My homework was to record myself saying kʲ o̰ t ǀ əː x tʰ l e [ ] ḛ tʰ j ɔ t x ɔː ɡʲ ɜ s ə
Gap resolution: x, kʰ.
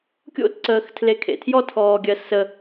kʰ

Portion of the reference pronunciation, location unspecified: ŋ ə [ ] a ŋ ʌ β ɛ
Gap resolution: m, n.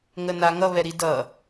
n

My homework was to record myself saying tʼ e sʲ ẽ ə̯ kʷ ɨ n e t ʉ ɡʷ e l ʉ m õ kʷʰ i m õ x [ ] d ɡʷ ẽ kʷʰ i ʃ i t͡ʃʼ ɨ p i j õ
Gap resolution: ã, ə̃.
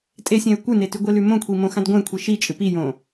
ã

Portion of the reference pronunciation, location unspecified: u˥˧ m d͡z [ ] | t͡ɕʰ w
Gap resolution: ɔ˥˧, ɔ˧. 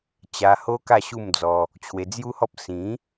ɔ˧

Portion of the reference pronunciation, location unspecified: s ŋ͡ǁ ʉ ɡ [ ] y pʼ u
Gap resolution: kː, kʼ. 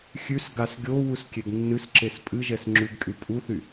kʼ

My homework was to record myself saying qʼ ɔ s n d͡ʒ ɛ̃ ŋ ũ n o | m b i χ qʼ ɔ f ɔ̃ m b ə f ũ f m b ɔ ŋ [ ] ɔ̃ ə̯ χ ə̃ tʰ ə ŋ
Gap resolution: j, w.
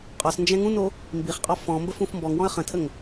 w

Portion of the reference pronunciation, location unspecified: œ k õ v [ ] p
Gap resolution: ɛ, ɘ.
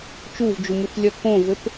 ɘ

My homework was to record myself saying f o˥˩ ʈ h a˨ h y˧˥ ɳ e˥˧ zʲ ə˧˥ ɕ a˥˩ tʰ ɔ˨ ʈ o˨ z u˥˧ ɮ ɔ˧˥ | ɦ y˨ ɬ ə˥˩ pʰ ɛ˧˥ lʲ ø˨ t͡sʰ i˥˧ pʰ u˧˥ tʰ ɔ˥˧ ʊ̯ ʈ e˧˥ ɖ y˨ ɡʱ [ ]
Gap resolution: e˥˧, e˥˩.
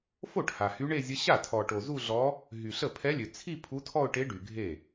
e˥˩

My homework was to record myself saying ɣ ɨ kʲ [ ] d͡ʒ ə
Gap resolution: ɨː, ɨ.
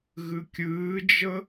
ɨː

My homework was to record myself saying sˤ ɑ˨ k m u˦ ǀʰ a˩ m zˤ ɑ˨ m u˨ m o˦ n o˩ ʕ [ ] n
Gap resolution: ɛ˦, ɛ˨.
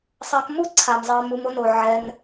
ɛ˨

